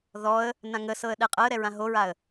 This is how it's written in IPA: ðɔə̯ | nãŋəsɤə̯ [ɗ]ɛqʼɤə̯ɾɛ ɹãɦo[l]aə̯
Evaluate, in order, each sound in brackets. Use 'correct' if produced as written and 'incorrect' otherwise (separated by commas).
correct, incorrect